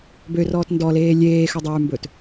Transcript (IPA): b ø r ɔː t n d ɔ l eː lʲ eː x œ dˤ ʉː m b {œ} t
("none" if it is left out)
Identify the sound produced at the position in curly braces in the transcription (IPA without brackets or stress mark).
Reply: ɵ